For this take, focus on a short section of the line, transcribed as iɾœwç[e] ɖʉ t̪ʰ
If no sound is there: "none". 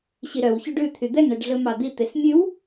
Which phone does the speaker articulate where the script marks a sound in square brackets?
y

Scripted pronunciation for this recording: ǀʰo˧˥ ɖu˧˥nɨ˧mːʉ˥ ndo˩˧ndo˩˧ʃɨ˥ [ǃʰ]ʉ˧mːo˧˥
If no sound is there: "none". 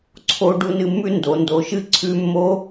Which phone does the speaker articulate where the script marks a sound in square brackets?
ǀʰ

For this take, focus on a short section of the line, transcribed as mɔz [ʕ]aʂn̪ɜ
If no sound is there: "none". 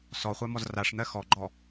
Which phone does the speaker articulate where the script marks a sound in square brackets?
r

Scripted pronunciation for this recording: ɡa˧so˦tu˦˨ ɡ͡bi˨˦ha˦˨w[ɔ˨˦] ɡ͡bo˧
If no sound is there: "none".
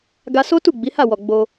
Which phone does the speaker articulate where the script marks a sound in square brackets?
ɔ˨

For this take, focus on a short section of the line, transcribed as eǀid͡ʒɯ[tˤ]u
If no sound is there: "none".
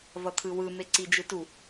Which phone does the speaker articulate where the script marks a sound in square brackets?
t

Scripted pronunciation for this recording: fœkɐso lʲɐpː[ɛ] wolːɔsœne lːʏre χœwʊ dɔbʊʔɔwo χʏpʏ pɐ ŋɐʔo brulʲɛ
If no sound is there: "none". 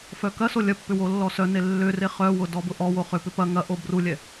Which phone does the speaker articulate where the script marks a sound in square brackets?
ʏ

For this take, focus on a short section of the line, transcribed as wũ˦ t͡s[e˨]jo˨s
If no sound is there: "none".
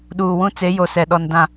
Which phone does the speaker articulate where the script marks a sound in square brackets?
e˨˦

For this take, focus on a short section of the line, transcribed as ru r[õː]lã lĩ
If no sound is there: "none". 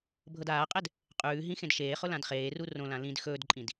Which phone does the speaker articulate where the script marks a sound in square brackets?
õ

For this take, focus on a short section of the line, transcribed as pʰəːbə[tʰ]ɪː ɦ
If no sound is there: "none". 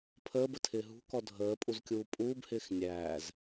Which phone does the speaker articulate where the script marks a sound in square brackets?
tʰ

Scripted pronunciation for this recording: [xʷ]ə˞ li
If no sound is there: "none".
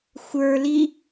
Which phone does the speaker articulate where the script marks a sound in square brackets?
xʷ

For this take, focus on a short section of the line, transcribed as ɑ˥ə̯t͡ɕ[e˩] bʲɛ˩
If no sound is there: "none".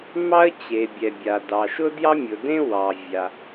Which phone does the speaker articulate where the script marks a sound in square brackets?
e˩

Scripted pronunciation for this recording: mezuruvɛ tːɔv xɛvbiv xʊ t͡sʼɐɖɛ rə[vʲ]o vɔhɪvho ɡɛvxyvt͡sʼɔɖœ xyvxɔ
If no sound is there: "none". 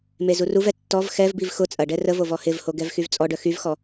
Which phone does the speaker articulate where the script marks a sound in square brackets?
v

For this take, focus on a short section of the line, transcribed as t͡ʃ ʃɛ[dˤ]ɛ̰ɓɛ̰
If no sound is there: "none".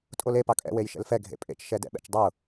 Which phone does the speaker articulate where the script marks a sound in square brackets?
d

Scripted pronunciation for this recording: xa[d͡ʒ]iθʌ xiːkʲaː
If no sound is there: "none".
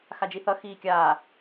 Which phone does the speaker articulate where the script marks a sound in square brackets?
d͡ʒ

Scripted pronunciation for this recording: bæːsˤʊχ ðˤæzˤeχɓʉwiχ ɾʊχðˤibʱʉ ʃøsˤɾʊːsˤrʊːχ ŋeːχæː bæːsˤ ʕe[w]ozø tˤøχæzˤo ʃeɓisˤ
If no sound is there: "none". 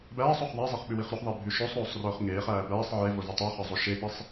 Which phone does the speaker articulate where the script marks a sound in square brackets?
v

